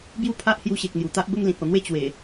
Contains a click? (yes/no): no